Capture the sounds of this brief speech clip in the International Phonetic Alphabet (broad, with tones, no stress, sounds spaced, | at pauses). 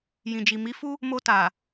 j ĩ˨ d͡ʒ i˨ m i˨˦ f u˦ | m o˧ t a˨